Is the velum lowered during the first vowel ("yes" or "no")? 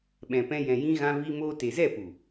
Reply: yes